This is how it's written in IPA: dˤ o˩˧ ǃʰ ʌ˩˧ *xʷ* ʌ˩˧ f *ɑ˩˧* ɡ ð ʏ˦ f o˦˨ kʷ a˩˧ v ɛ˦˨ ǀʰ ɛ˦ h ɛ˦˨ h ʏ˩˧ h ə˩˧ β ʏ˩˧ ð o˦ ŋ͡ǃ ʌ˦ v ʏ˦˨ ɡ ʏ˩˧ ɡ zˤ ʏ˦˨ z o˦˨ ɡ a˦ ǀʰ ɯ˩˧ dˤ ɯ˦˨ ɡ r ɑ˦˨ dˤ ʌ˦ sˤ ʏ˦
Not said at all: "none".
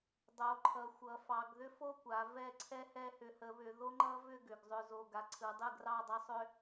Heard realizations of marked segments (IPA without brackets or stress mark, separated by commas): xʷ, ɑ˩˧